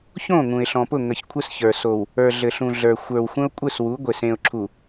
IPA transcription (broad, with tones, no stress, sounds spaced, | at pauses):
ç õ˦˨ ŋ ũ˨ ɪ̯ ɬ ɔ̃˨ p ʊ˦˨ ŋ ə˨ ç kʷʰ ɘ˦ s ç ə˞˨ s o˨ w | ə˞˨ ɮ ɘ˨ ɬ ũ˨ ɮ ə˞˨ xʷ ə˞˨ w xʷ ə̃˦ ʊ̯ kʷʼ ɘ˦˨ s w u˨˦ ɡʷ e˨ s ẽ˨ ʊ̯ ǁʰ u˨